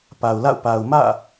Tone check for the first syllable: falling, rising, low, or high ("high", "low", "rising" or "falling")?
low